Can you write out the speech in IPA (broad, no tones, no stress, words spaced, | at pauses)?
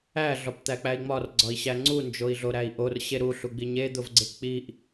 æ ɮɒpt̪æk͡pæi̯ŋ͡mɒr ɡ͡ǀɒi̯ɕæŋ͡ǀu nd͡ʒoi̯ɮoɾæi̯ʔor ɕeɾu ɬuɡ͡biɲe d̪ovɡ͡ǀepk͡piʔ